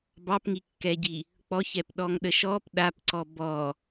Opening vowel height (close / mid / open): open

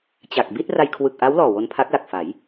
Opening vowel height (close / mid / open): open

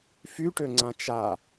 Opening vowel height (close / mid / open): close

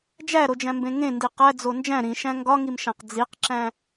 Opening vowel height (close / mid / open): open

